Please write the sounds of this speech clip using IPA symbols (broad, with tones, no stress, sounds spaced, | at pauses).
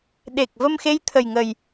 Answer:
ɗ e˨˩ k̚ v ə˧ m x e˧˥ j t̪ʰ ə˨˩ j ŋ ə˨˩ j